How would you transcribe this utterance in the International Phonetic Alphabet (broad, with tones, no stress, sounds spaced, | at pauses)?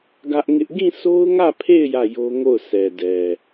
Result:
ɡ ä˦ ʔ ŋ ɪ˦ ʔ ɡ ĩ˦˨ sʰ o˦ ʊ̯ ŋ ä˦˨ pʰ e˦˨ ɪ̯ j ä˦˨ j o˦ ŋ o˦˨ ʊ̯ sʰ ɛ˨ d ɛ˨